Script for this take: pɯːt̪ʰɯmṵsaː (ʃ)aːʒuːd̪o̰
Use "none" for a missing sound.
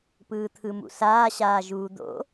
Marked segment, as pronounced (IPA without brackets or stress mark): ɕ